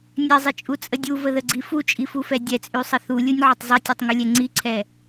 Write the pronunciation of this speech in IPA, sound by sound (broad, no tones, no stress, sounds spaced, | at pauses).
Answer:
nʲ ɛ zˤ ə t͡ʃʼ u t͡sʼ ə dʲ u v ə ð ə ɡ͡ǀ i f u t͡ʃʼ i f u f ɛ dʲ ɛ t͡sʼ y sˤ ə θ u lʲ u nʲ ʕ u tˤ zˤ ɛ tʲ ɛ tˤ ŋ u lʲ ɛ ŋ͡ǀ i ǀʰ ɛ